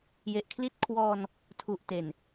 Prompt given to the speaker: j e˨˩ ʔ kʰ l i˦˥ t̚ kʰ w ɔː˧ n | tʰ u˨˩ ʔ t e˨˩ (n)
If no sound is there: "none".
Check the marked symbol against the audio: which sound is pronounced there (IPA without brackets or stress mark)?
n